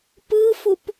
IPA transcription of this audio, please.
pɯfup

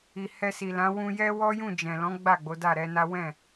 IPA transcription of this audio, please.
i˨ hɛ˧si˨lã˨˦ wũ˧jɛ˦wɔ˦jũ˦˨ d͡ʒɛ̃˨lɔ̃˨˦ ɡ͡ba˦˨ ɡ͡bo˨˦da˦˨ɾɛ˨˦na˦ wɛ̃˦˨

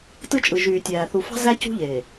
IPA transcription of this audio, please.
tɯ˦t͡ʃʼɯ˨ʒyː˨tʲæː˨ θu˨fɑ̤˦ zæ˦cṳ˦ʎeː˨

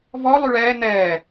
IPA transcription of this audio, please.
vɔ lˠyɭɛː n̪ɛː

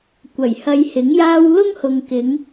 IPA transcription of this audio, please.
kʷɐ˨˩jhɐ˧jhɪ˨˥ŋjaː˥w lʊ˥ŋhʊ˨ŋkɪ˨˧ŋ

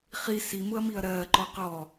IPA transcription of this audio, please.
χi simʊɐ̯miɐ̯ ɾɜːǃɔ qɔ

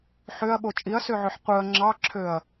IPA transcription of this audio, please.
ħøɐ̯ɓo t͡ʃʼiɐ̯søʕøħ qʷɯɐ̯ ŋ͡ǁɑǁʰøɐ̯

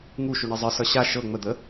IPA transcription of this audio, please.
ŋuʃu ɳezˤɨsʌ ɕa ʃɤ ŋ͡məd̪ə

